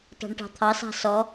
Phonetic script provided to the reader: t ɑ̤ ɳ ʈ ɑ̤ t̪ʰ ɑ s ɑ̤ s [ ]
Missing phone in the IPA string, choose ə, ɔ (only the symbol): ɔ